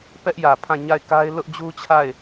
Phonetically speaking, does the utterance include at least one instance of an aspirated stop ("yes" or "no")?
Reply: yes